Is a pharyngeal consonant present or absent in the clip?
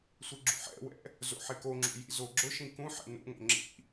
present